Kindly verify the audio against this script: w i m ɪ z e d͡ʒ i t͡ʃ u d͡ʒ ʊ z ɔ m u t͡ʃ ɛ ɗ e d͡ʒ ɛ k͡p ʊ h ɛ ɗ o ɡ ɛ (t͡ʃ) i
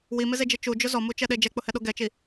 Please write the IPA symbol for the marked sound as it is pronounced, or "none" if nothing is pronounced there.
t͡ʃ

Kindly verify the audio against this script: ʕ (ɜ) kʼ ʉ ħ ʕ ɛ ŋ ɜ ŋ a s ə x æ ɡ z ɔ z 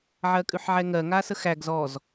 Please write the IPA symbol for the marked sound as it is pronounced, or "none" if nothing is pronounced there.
ɜ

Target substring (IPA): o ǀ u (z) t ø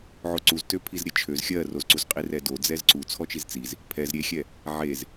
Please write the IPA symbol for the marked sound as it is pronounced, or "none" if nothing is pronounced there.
z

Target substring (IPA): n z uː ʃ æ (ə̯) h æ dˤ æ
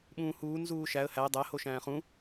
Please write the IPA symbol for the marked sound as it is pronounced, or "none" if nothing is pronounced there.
ə̯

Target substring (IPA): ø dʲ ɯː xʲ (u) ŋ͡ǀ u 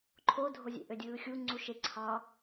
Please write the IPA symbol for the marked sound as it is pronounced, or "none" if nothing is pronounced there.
u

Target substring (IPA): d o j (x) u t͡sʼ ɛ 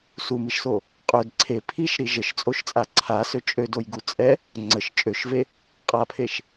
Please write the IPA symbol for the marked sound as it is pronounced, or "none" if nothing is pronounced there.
ɡ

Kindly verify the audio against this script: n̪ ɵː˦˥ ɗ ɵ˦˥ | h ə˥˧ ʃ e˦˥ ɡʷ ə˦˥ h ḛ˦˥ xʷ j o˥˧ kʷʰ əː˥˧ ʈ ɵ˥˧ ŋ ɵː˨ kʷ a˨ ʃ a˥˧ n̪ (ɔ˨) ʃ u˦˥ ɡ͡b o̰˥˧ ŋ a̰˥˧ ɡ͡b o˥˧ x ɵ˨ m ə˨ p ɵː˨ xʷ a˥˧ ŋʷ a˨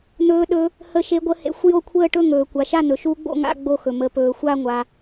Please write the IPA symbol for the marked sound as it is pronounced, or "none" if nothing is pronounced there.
ɵ˨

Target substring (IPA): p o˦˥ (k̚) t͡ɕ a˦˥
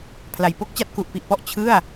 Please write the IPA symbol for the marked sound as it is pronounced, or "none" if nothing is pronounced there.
k̚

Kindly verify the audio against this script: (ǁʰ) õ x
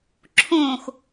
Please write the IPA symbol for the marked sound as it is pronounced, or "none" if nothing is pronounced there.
ǁʰ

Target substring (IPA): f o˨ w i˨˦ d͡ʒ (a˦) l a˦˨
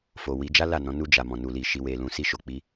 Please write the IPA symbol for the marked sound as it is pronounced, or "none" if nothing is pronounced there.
a˦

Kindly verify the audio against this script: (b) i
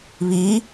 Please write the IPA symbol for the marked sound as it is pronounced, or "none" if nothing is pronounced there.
β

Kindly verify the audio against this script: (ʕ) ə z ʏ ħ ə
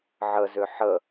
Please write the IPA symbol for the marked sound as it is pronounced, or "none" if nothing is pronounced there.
ʕ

